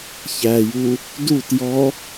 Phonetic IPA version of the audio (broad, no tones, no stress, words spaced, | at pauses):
çæju | dut jɔ